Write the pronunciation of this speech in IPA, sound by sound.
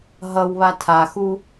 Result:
ɦ ʌ w β a tʰ a x u

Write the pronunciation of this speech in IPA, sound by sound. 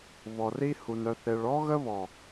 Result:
β ɔ˨ r i˦ h u˨ n œ˨ θ e˨ ɭ ɔ˦ ɣ ə˦ β ɔ˨

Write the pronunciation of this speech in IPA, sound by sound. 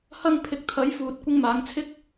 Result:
h ɐ˥ ŋ pʰ ɪ˧ k̚ t̪ʰ ɐ˨˥ j f uː˨ t̚ kʷ ɪ˧ ŋ m aː˨˧ ŋ t͡sʰ ɪ˥ k̚

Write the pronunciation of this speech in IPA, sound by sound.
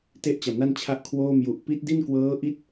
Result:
t e˥˩ ʔ t͡ɕ a˨˩ m n a˥˩ n t͡ɕʰ a˦˥ ʔ kʰ w oː˥˩ m j u˨˩ ʔ p i˦˥ t̚ d i˥˩ n k w ɤː˦˥ ʔ i˦˥ t̚

